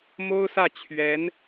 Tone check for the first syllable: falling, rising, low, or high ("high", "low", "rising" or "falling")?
high